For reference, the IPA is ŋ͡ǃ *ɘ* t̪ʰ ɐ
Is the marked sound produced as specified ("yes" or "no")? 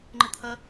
yes